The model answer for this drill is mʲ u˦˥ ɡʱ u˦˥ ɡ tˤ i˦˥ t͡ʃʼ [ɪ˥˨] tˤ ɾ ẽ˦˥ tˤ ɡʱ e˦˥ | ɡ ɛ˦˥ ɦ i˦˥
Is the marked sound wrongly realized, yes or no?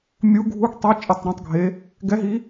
no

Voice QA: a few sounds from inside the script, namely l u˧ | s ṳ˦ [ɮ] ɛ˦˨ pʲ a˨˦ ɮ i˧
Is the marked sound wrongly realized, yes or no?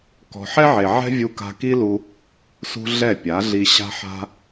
no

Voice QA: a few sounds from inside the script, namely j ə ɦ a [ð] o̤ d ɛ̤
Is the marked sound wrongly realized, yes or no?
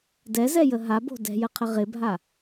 yes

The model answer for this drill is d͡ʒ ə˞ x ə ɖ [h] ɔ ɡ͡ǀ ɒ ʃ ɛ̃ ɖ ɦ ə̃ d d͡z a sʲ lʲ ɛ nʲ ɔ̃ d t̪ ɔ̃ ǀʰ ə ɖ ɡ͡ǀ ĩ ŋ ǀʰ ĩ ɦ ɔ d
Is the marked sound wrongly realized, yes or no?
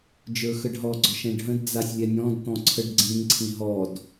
yes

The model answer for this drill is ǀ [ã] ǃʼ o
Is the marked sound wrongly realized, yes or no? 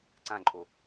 no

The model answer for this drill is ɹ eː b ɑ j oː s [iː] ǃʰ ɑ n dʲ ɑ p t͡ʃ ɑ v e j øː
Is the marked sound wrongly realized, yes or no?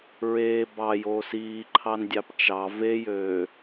no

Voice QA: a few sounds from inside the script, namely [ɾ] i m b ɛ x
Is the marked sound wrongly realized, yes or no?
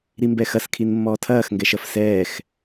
no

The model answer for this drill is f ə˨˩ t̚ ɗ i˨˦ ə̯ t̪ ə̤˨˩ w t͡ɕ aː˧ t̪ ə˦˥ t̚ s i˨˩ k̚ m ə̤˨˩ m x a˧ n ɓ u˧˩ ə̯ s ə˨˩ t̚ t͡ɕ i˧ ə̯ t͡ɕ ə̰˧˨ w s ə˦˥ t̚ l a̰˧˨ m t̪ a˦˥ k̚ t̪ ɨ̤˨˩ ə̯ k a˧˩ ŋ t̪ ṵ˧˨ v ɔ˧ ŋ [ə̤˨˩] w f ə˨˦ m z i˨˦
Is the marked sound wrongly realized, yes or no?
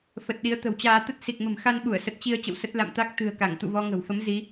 no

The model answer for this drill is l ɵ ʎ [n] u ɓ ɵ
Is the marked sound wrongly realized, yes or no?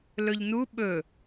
no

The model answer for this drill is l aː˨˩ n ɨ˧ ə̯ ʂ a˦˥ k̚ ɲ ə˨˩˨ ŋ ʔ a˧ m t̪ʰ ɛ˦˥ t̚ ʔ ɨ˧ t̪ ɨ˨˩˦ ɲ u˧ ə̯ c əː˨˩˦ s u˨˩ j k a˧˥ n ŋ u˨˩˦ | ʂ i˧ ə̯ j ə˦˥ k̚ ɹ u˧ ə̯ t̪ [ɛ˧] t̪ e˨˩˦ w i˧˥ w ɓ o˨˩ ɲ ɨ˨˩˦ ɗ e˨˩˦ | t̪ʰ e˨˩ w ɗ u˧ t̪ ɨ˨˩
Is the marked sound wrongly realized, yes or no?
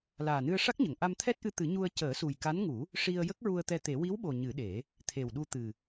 no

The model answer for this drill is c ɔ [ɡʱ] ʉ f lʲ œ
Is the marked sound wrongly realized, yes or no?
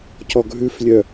no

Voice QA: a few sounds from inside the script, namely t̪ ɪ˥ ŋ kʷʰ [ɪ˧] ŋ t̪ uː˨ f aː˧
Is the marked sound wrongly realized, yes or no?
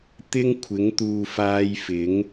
yes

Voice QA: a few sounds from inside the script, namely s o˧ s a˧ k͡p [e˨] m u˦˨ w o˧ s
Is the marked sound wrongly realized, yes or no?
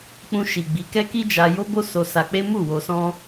yes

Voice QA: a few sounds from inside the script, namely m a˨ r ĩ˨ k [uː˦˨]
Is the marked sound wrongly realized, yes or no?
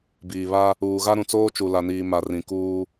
yes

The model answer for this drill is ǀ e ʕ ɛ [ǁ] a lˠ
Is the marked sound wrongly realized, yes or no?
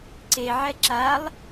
no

